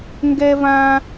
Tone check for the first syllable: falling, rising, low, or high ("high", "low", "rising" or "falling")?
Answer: high